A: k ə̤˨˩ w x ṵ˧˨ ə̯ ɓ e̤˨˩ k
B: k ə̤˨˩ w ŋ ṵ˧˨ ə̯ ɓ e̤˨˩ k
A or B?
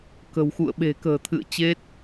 A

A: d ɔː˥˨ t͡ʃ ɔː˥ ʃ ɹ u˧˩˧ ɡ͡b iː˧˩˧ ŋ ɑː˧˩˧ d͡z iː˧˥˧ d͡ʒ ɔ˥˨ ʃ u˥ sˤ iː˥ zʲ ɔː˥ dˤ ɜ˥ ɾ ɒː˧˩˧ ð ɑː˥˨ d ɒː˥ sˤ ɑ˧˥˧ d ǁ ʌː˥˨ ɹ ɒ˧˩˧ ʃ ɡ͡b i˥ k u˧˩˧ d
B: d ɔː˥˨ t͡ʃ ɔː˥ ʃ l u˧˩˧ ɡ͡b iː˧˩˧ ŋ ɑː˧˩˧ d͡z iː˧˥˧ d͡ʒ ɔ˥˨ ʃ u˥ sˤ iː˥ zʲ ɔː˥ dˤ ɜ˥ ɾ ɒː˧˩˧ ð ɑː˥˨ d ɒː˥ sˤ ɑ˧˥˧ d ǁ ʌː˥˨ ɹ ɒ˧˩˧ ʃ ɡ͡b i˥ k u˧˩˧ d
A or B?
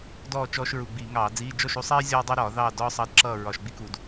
A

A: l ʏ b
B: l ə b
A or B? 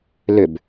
A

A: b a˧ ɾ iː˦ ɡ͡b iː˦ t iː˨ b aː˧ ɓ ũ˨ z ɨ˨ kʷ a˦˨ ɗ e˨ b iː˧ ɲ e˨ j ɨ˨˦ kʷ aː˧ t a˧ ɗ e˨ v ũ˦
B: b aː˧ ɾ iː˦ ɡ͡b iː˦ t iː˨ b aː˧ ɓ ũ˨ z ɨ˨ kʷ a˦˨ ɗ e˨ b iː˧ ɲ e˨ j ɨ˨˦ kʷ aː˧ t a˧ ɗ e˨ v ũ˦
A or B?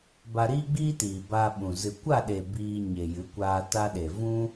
A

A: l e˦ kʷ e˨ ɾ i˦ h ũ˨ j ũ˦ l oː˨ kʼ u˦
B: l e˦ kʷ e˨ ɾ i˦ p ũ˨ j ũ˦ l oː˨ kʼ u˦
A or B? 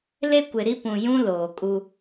B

